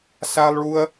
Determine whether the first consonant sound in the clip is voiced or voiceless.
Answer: voiceless